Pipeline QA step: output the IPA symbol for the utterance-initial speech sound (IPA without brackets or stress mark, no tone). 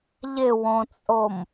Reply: ʎ